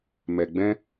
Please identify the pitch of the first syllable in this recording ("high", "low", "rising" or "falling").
low